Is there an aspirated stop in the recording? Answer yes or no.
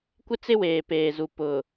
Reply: no